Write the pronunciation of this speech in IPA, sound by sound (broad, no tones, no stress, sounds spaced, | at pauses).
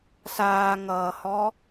s aː ŋ ʌː h ɔ